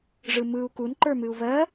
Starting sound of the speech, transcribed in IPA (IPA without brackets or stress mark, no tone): ʐ